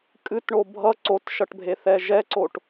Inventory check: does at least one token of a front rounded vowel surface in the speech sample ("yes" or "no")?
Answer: no